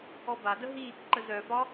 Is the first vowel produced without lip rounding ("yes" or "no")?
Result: no